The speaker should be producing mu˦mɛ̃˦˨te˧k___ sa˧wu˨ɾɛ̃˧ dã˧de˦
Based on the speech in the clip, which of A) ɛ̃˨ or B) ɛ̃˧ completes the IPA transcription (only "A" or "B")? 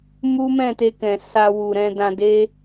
A